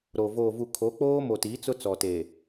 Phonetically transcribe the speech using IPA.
ɾ o˨ v oː˨ v u˨ kʰ o˨˦ k͡p oː˦ m o˨ t i˨˦ t͡s ʊ˦ t͡s ɔ˨ t eː˨

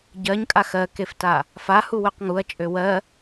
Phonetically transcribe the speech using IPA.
ɟ ɜ ɲ kʼ a x ɜ k e f t a | f a h u w ø q ŋ u ɐ̯ t͡ʃʼ ø w ɜ

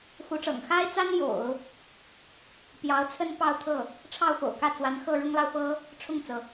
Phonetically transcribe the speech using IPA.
x u˧˥ ʈ͡ʂ ɤ̰˨˩ ŋ x a˥ ɪ̯ t͡s a˥ n j o̰˨˩˦ ʊ̯ | p j ɑ˧˥ ʊ̯ t͡sʰ ə˥ n p ɑ˥˧ ʊ̯ t̪ʰ ɤ˥˩ | ʈ͡ʂʰ ɑ˥˩ ʊ̯ f o̰˨˩ ʊ̯ k ä˥˩ t͡s w a˧˥ n x ɤ˥˩ ɻ ʊ˥ ŋ l ɑ˨ ʊ̯ f ɤ˥ | ʈ͡ʂʰ ʊ˥˩ ŋ t͡s ɤ˩

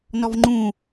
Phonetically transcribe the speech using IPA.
n ɔ v ŋ͡ǃ ũ

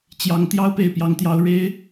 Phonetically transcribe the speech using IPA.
t͡ɕ j ɑ˧˥ ŋ t̪ j ɑ˥ ʊ̯ p e˥˩ ɪ̯ p j ɑ˧˥ ŋ t̪ j ɑ˧˥ ʊ̯ ɻ e˥ ɪ̯

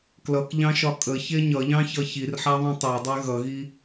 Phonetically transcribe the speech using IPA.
k l ʌ k ʎ ɑ̃ ʃ ɒ kʼ ə ç e ɲ ʌ ʎ ɑ̃ ç ʌ ç i r ħ a ðˤ ĩ tˤ e dˤ e ɣ ʌ ɣ i

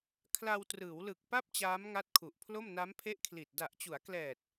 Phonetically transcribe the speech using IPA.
kʰ l a˧ w t r ɯː˩˦ w l ɯ˨˩ k̚ p a˥˩ p̚ t͡ɕ aː˦˥ m ŋ a˦˥ t̚ kʰ u˨˩ ʔ pʰ l o˥˩ m n a˦˥ m pʰ e˦˥ ʔ kʰ l i˨˩ t̚ d a˨˩ ʔ t͡ɕ u˩˦ a̯ k l ɛː˨˩ t̚

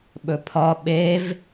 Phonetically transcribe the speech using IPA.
ɓ ɵ pʰ ɒ ɓ e v

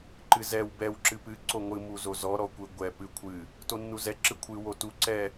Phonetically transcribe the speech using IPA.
ǃ ɨ z ɛ w b ɛ w ǁ ɨ p ɨ ǀ o ŋʷ ɨ m u z o z ɔ ɾ ɔ kʷ ɨ ɡʷ ɛ p ɨ kʷʰ ɨ | t o nː u z ɛ ǁ ɨ kʷʰ ɨ w o t u ǀ ɛ

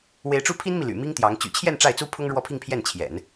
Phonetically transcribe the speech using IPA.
w e˧˥ ɪ̯ ʈ͡ʂ u˥˩ pʰ i˥ n m i˨ l y̰˨˩ m i˥ ŋ t̪ j ɑ˧˥ ŋ t͡ɕ y̰˨˩ t͡ɕʰ j ɛ˥˧ n ʈ͡ʂ a˥˩ ɪ̯ t͡s u˥ pʰ ʊ˥ ŋ ɻ w ɔ˥˧ pʰ i˥˧ ŋ pʰ j ɛ˥˩ n t͡ɕʰ j ɛ̰˨˩˦ n

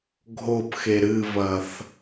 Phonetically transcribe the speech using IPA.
ɡʱ o p x e ɾ ɨ v ɐ θ

